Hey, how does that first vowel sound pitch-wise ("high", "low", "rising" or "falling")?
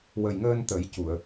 low